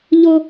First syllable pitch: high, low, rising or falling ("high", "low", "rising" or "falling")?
high